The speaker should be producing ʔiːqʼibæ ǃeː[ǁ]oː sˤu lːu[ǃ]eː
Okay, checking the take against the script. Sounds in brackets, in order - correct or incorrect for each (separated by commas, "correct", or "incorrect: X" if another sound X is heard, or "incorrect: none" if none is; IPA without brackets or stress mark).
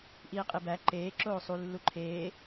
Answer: correct, incorrect: ǃʰ